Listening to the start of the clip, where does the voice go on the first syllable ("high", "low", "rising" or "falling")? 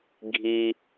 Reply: low